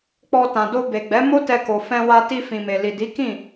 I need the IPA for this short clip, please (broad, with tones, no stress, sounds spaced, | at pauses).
k͡p ɔ˧ t ã˨ d o˧ b e˨ ɡ͡b ɛ˨˦ m o˦ t ɛ˧ k o˨ f ɛ̃˧ w a˧ t i˧ f ĩ˨ m e˨ l i˨ d i˨˦ k ĩ˦˨